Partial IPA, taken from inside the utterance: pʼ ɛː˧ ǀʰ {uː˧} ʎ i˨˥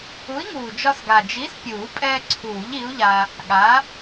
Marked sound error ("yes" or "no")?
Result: yes